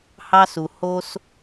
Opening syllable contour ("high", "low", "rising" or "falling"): high